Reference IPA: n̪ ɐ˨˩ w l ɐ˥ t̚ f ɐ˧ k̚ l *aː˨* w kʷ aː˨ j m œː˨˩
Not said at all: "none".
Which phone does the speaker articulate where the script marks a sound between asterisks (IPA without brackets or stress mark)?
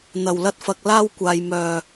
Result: aː˥